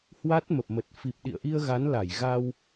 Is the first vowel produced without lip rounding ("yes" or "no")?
yes